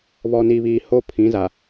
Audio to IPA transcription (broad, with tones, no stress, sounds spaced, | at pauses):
β ɔ˨ n iː˨ β iː˨ h o˦ pʰ ĩ˨˦ z a˨